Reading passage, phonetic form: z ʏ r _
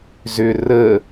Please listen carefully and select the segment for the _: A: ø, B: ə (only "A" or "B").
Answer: B